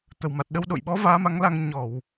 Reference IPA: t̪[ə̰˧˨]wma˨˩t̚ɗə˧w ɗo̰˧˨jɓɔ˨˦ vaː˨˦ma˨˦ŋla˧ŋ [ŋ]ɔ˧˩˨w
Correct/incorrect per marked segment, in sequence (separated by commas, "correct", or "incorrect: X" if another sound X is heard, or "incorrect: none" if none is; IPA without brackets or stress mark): incorrect: ə˨˩, incorrect: ɲ